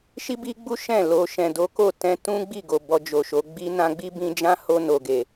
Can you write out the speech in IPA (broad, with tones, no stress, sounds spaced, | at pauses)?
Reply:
ʃ i˦ b i˦ ɡ͡b u˦ ʃ ɛ̃˦˨ l o˨ ʃ ɛ̃˨ d o˨˦ k o˦˨ t ɛ̃˧ t ũ˦ ɡ͡b i˦˨ ɡ o˨ b ɔ˧ d͡ʒ o˨ ʃ o˨˦ ɡ͡b i˧ n ã˧ ɡ͡b i˦ b ĩ˧ d͡ʒ ã˦ h o˧ n o˨ ɡ e˨